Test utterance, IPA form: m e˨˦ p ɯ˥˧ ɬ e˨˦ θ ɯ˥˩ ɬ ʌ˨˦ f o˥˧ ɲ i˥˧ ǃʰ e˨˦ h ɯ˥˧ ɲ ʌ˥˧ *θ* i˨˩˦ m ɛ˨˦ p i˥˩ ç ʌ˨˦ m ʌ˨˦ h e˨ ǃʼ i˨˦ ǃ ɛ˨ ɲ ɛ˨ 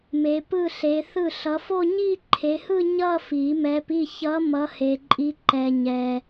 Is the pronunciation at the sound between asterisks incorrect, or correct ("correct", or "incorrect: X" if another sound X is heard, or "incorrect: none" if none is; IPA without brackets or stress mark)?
incorrect: f